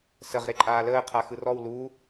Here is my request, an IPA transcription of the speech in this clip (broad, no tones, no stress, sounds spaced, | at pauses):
s ə ʁ ɾ e ǃʼ aː l əː qʰ a x ɯ r ɔ w l u